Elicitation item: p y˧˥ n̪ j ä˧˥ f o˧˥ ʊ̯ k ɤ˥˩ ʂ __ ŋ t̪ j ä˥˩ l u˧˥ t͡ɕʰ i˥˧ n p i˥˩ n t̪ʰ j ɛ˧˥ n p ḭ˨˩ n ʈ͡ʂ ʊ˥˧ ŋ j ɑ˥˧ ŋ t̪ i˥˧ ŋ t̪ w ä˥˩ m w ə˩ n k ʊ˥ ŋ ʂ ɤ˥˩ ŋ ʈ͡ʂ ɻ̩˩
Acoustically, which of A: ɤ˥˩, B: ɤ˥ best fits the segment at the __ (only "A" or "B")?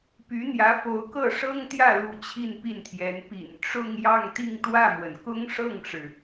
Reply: B